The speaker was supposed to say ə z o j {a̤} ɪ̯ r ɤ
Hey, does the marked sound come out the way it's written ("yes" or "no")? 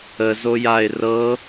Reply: no